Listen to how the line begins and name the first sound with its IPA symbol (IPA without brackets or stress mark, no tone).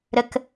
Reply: ɾ